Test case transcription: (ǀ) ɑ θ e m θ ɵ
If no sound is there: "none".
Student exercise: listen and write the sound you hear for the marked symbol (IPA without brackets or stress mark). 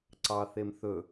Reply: ǀ